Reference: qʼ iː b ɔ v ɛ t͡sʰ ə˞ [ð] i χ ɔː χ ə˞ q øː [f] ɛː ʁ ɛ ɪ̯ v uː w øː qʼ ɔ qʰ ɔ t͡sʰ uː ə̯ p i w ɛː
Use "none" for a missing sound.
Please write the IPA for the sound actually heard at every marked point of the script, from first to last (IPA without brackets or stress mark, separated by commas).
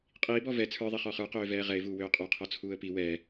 ðˤ, v